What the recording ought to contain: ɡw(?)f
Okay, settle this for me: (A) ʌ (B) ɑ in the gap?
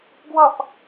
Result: A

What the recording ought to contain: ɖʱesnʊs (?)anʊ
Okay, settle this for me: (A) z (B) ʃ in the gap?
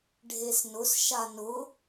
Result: B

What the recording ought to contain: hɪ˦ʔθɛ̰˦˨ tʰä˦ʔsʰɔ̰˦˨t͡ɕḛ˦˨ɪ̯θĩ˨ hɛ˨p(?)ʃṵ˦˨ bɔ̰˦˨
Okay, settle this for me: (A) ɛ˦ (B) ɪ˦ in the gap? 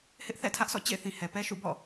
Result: A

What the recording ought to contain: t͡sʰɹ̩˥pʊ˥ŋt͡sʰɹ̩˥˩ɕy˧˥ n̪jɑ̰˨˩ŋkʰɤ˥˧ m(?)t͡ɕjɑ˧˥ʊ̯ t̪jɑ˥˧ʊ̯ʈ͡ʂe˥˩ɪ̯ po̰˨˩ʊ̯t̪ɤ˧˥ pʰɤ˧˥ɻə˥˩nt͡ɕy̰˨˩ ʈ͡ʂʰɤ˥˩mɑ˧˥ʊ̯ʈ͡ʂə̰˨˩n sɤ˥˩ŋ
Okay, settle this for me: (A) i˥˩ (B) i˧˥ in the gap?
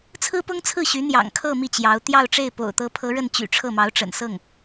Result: A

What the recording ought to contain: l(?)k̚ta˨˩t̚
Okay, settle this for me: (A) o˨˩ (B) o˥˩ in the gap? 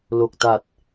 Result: A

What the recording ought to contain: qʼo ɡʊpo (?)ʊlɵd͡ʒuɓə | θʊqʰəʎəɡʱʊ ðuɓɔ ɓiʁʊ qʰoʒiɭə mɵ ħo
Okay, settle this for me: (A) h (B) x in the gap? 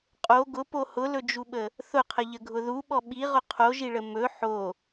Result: A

